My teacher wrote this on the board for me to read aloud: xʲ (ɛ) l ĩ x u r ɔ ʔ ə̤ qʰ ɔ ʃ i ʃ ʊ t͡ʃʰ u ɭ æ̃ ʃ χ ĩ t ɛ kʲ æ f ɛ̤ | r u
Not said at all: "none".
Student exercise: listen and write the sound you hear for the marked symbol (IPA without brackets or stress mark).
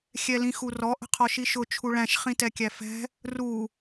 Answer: ɛ